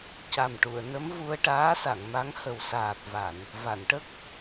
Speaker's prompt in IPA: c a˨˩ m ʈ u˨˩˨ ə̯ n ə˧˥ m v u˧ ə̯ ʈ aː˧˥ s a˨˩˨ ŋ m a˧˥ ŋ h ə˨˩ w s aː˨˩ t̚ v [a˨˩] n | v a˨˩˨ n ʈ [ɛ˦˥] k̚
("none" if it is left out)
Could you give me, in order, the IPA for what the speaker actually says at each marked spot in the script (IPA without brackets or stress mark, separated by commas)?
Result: a˨˩˨, ə˦˥